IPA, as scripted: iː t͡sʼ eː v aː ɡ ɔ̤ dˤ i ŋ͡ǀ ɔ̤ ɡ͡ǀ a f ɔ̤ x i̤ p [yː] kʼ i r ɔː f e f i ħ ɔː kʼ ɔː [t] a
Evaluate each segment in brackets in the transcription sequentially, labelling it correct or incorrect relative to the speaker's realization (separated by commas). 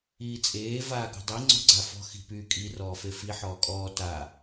correct, correct